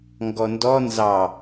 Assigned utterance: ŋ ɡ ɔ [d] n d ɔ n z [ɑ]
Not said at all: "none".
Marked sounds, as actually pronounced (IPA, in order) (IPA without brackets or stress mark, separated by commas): none, ɑ